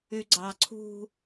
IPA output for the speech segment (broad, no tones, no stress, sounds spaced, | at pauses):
y ɡ͡ǀ ɑ ǀʰ ṳ